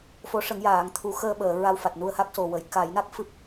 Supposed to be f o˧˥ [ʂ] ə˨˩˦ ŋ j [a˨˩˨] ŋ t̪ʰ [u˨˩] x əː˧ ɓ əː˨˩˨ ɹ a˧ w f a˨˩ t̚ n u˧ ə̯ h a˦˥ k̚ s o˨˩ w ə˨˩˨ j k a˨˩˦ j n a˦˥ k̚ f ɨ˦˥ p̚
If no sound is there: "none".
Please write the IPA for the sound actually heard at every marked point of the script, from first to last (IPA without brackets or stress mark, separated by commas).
ʂ, aː˨˩˨, u˨˩˦